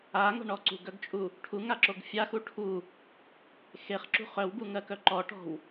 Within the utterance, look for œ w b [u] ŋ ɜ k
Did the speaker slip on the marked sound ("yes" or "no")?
no